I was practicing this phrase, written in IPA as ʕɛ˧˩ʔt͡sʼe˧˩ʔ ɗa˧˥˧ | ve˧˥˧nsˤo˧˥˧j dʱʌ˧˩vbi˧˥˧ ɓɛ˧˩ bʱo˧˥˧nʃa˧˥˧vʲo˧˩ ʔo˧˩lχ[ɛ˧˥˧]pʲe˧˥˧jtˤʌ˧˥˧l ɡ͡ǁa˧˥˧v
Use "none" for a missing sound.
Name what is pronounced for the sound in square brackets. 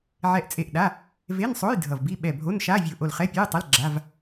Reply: ɛ˧˥˧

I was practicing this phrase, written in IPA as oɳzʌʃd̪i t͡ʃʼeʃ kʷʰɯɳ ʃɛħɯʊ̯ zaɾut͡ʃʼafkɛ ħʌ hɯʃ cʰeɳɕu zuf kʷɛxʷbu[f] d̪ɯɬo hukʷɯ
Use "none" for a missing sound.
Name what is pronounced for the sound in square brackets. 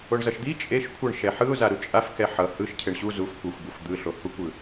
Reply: f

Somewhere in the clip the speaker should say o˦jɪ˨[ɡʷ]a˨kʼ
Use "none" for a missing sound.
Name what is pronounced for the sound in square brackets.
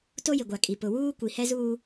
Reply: ɡʷ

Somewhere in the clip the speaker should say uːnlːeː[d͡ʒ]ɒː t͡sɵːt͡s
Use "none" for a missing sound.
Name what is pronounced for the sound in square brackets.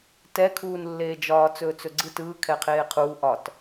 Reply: d͡ʒ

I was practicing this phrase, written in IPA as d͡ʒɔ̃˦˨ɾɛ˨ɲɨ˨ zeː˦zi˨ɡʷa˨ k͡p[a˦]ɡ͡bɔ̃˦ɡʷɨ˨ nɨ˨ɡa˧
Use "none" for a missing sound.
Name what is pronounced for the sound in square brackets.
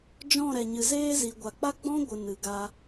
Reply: a˦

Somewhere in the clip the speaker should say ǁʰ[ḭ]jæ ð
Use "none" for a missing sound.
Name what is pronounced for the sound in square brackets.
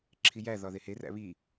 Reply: i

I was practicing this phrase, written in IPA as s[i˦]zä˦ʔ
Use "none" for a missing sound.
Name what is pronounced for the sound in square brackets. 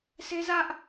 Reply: e˦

